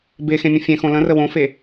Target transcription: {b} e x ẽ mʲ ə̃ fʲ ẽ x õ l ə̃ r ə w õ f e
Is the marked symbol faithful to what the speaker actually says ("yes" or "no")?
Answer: yes